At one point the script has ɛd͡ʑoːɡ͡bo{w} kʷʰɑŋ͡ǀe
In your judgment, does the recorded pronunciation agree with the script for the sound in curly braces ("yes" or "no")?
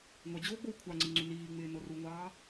yes